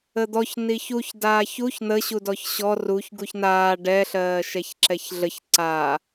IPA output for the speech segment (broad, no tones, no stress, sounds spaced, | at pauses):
ə d̪ ɔ ç n i ç u ç d aː ç u ç n̪ ə ɕ u d ɔ ç ɕ ɔ r u ç ɡ u ç n aː ɖ ɛ ɬ ɜː ʃ ɛ ç ǁ ɛ ç ɮ ə ç ǀ a